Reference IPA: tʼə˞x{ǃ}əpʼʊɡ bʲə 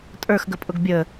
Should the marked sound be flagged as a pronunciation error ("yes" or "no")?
yes